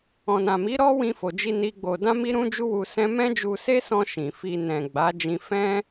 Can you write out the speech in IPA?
ɔ̃˨ n ã˨ m i˨˦ ɾ ɔ˦ w ĩ˧ f o˨ d͡ʒ i˧ n i˦ ɡ͡b o˧ d ã˦ m i˦ ɾ ũ˦ d͡ʒ u˦ w u˧ s ɛ̃˦ m ɛ̃˦ d͡ʒ u˧ s e˦ s ɔ̃˧ ʃ ĩ˨ f i˧ n ɛ̃˨ ɡ͡b a˨˦ d͡ʒ ĩ˧ f ɛ̃˦

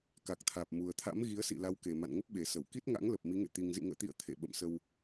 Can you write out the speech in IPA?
k a˨˩ k̚ t̪ʰ aː˨˩ p̚ m u˨˩ ə̯ t̪ʰ a̰˧˥ m ɣ i˨˦ ə̯ s ḭ˧˨ l a˨˦ w k e˨˩ m a̰˧˨ n ŋ ə˦˥ p̚ ɓ e˨˩ s ə˧˩ w k i˦˥ t̚ ŋ a̰˧˥ ŋ l ə˨˩ p̚ m i˨˦ ŋ ḛ˧˨ t̪ i˨˩ ŋ z ḭ˧˨ ŋ ə̰ː˧˨ t̪ ḭ˧˨ ə̯ t̪ʰ ḛ˧˨ ɓ ə̰˧˨ m s ə˧ w

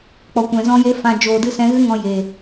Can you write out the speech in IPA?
k͡p ɔ˨ kʷ ɛ̃˨ z ɔ̃˦ j e˦ f ã˧ d͡ʒ oː˨ d ɨ˦˨ s ɛ̃˧ ɣ ɨ˦ ŋ ɔ̃˧ j eː˨

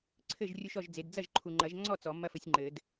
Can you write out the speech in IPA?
ǀʰ ɘ˥˨ ʒ rʲ u˦ ʃ ɔ˥˨ ʒ d͡z e˨˦ d d͡z ɐ˥˨ ʒ ǃʰ u˨ ŋ͡ǃ ɐ˨˩˦ ʒ ŋ͡ǀ ɔ˥˨ t͡s ɔ˨˩˦ mː ɐ˦ f ɘ˨˦ sʲ ŋ͡ǃ ɘ˨˩˦ d

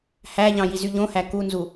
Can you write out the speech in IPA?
h æ ʎ ɑ̃ j i z y ʎ õ h æ k u n z u

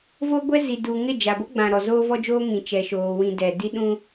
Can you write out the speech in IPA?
v o˦ ɡʷ ɛ˦ z i˨ d u˨ ŋ ɪ˦˨ d͡ʒ a˨ b o˦ ɡ͡b ã˨ ɾ ɔ˨ z oː˦ v ɔ˦ d͡ʒ oː˦ ŋ ĩ˨ t͡ʃ ɛ˨ ʃ oː˨ w ĩ˨ d ɛ˨ d i˦ ɗ ũ˦

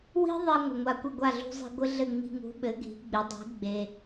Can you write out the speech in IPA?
w i̤˥ ðˤ i˧ ŋʷ ɪ˩ ŋʷ a˧ kʷ ɪ˥˩ ɡʷ a˥˩ ɮ ṳ˧ zˤ i̤˧ ɡʷ ɘ˥ ɮ ɘ˥˩ ŋ͡m i̤˧ ŋ ṳ˩˥ ɓ ɘ˩˥ ɡʱ i̤˩˥ ɡ͡b ɪ˩˥ dˤ i̤˩˥ ɡ͡b e˩

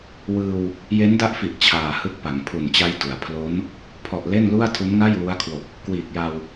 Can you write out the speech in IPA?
w ɯː˧ w | j e˦˥ n d a˦˥ ʔ f i˨˩ ʔ t͡ɕʰ aː˨˩ h ɯ˦˥ k̚ p a˩˦ ŋ pʰ u˨˩ n t͡ɕ a˦˥ j d u˩˦ a̯ pʰ l o˦˥ n | pʰ ɔ˨˩ ʔ l e˥˩ n l u˥˩ a̯ tʰ u˦˥ n ŋ a˥˩ j w u˦˥ a̯ kʰ w o˨˩ k̚ | k w iː˨˩ k̚ j a˧ w

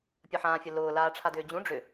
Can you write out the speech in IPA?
pʲ ə ħ ãː fʲ ə l ʊː l aː ʈ͡ʂʰ a d ʏː d͡ʑ ũ ɖ͡ʐ ʏ

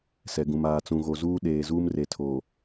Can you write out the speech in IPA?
s ɛ˨ ɡ ũ˨ m aː˨ t͡s ũ˨ ɣ o˨ z uː˦ ɗ eː˨ z uː˦ m r e˨ tʰ o˨

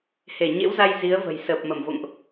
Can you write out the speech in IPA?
h e˧˩ ɲ ḛ˧˥ w z a˧ j z i˨˦ ə̯ v ə̤˨˩ j s əː˨˩ p̚ m ə˧˩ m v o̰˧˨ ŋ ʔ

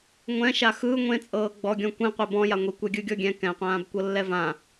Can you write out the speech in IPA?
ŋʷ ɛ̃ ʃ a x ɯ ŋʷ ẽ t͡sʼ ɤː ɡ͡b ɔ ɡʲ ɔ̃ kʷ ĩ qʷ e b ɔ̃ j a ŋʷ i kʷ ɛ ɡʲ ɯ ɡʲ ɔ ɡʲ ɛ̃ k ɛ̃ qʷ ãː b kʷ ɤ lː ɛ v ã

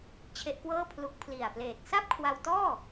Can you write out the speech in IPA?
t͡ɕʰ e˦˥ ʔ k w ɤː˥˩ pʰ l u˦˥ k̚ pʰ l i˨˩ a̯ p l eː˨˩ t̚ s a˥˩ p̚ kʰ w a˧ w t ɔː˥˩

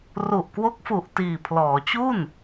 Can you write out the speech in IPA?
r u˨˩ ʔ k w o˦˥ k̚ f u˨˩ ʔ t iː˨˩ pʰ l ɔː˩˦ t͡ɕ u˥˩ n

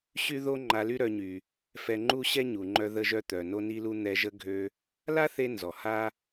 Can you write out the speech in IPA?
ɕ y˥ ð o˥ ŋ͡ǃ a˧ l y˥ ɾ œ˧ ɲ y˩ | f ɛ˧ ŋ͡ǃ u˥ ɕ ɛ˥ ɲ u˩ ŋ͡ǃ œ˧ ð ə˧ ʒ œ˧ t̪ œ˩ n o˧ n i˧ l u˧ n̪ ɛ˧ ʒ ə˥ ɡʱ ø˧ | l a˥ θ e˧ n z ɔ˩ h a˥

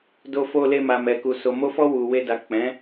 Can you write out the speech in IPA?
d o˧ f o˧ l e˧ m a˨ m ɛ˨ k u˨ s o˨ m o˧ f ɔ˧ w u˨ w e˧ d a˨ k͡p ɛ̃˨˦

